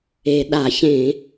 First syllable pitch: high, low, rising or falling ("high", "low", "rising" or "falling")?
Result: low